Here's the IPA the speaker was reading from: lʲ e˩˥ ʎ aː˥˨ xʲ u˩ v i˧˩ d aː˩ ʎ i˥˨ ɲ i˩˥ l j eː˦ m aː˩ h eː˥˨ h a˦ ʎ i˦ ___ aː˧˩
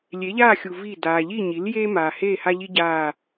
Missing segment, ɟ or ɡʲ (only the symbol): ɟ